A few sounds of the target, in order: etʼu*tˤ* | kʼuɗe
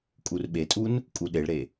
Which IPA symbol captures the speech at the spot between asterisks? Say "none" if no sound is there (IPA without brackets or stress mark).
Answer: n